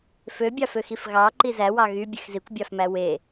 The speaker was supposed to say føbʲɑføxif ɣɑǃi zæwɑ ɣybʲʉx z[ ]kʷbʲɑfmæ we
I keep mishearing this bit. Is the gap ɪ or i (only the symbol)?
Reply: i